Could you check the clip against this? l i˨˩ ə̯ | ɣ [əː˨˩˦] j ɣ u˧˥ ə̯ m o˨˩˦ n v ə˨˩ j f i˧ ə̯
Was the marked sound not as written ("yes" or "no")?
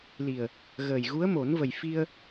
yes